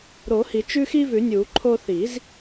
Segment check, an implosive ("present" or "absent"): absent